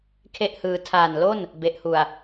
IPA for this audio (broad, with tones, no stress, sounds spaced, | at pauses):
kʰ e˥˩ ʔ h ɯː˧ tʰ aː˨˩ n l o˥˩ n | b e˨˩ ʔ h u˨˩ a̯